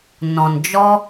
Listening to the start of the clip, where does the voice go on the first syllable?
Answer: low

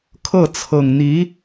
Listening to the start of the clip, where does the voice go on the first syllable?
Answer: falling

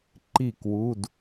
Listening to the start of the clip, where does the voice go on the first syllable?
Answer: falling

